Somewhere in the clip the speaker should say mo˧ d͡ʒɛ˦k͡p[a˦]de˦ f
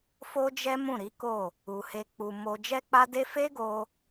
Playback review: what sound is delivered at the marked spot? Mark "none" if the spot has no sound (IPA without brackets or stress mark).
a˦